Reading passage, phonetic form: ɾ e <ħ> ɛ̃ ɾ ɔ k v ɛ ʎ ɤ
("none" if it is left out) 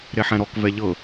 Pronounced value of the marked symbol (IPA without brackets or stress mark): ħ